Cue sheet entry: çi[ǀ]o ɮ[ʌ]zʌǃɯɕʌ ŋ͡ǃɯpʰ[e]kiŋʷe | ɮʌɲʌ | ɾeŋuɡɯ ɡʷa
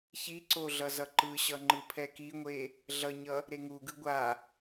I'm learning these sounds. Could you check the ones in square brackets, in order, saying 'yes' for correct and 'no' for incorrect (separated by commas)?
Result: yes, yes, no